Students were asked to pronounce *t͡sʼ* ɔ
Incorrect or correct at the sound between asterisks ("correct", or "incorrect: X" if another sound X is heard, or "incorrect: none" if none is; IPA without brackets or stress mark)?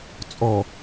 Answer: correct